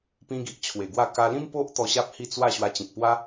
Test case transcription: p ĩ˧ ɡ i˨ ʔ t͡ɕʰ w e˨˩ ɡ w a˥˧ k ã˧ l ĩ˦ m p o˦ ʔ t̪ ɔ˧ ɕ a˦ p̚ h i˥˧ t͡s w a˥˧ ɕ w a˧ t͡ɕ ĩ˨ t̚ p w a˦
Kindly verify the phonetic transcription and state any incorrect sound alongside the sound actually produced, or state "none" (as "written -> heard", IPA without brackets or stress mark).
ã˧ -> a˧